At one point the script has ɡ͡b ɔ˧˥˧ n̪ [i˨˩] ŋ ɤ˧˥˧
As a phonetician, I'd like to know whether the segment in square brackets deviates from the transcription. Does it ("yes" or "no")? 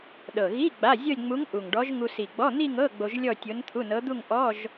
yes